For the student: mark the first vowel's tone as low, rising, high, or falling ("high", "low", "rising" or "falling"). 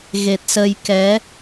low